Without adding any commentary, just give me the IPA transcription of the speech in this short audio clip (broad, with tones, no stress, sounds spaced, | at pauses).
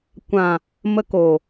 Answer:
kʷ ã˨ | m ə˧ k o˨